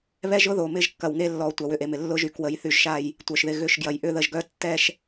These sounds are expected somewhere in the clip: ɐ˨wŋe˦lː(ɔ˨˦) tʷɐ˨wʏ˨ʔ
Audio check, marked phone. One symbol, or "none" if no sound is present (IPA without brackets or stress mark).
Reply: ɔ˨˦